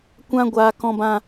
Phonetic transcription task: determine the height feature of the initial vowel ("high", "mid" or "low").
low